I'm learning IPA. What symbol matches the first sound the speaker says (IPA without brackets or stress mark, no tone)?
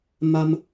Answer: m